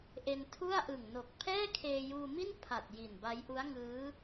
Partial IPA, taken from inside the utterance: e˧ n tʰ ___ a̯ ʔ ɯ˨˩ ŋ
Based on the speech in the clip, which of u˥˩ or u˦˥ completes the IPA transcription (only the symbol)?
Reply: u˥˩